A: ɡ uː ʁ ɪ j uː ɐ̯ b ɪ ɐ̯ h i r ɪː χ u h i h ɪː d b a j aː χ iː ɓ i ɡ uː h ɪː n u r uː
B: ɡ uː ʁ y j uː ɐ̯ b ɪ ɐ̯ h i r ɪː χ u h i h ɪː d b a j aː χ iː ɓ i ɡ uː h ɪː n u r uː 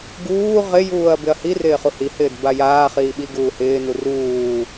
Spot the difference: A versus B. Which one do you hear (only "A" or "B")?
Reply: A